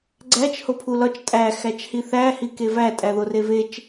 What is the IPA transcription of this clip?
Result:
ɡ͡ǀæt͡ʃ hopʰulɒt͡ʃ tʼæ xæt͡ʃhiθæ hikevæ tʼæðorevet͡ʃ

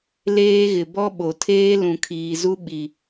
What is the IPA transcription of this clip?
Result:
leː˦ɣɪ˨ bɔ˦ɓo˨tʰeː˦ lũ˨kʰiː˨zu˦ ɓi˨

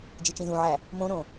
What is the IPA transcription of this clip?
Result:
d͡ʒit͡ʃĩzũʕæ | mõɾõ

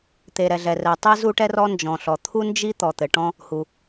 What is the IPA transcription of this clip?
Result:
t̪e˩ ɾɛ˩ɮɛ˩rɛ˩ tˤi˥zu˥ʈɛ˥ rɔ˥nd͡ʒɔ̃˩ɬɔ˩ t̪ʰu˥nd͡ʒi˥ t̪ɔ˩t̪ɘ˩ʈɔ̃˥ | hu˩

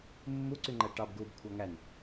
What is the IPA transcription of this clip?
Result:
mːuǀyŋ͡ǃæ ʈɑbɡuːbkʷʰɑ ŋæn

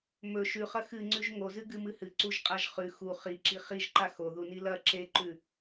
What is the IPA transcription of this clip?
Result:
mɵ ʃʉχɐ xɨŋ͡ǀʉʒ ŋozɨɡɨmɨ hɨǀuʒqʼaʒ χʉ xu χiǁi χiʒǃa xoðuni lɐ ǁeǃʉ

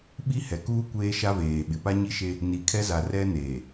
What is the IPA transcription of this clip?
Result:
ɓi˦hɛ˨kuː˦ kʷeː˦ʃa˦veː˨ ɓɪ˨pa˦ɲi˦ʃe˦ | ni˨kʰɛ˦za˨ rɛ˦neː˨

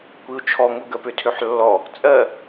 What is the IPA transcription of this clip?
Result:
kʷiu̯t͡ʃʰɔ ŋʊ ɡɜpøtʰøħlːɔ | t͡sʼɜ

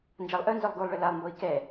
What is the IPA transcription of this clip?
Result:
nd͡ʒalˠʔœnzœlˠ ɡulˠɭə lalˠmboi̯ kɛ

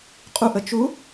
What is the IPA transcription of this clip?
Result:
qʼuʔə t͡ʃu

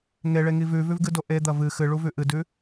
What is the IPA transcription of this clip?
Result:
ŋeɭeŋi vʉvʉvɡɨdo ʔed̪ɐ vɨ xɨɭuvʉ ʔɨdʉ

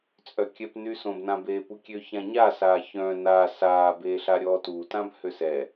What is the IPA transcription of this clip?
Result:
t͡sʼœkʲœpnyːs õbnãbeːpu kʲøçãɲasaː çœ̃ na saːbeːɬa ɾʲɔːtutãbhøs ɛ

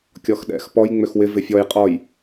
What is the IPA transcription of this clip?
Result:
kʲɔxɗɛ̰x pɔj ŋ͡mʏxwɪ vɪfʲɔj qʼɔj

